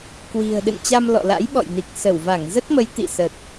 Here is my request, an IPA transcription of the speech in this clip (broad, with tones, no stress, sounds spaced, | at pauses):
k w i̤˨˩ ə̯ ɗ ɨ̰˧˨ n t͡ɕ a˧ m l ɔ̰˧˨ l a̰˧˥ j ɓ ɔ̰˧˨ j n i˨˩ k̚ s ə˧˩ w v a˧˩ ŋ z ə˦˥ t̚ m ə˨˦ j t̪ ḭ˧˨ s ə˨˩ t̚